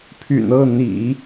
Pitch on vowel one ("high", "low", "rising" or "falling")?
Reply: low